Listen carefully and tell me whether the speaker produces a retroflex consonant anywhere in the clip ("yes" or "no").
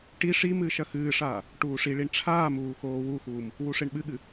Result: yes